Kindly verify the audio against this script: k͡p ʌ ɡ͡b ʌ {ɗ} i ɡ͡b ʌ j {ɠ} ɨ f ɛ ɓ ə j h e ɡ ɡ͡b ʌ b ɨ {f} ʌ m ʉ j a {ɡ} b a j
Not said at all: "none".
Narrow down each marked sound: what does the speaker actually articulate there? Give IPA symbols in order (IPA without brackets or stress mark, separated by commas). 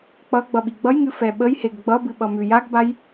ɓ, ŋ, ɓ, ɡ